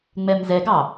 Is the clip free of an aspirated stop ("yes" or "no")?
yes